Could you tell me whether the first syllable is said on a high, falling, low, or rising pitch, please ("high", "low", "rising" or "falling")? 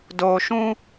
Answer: low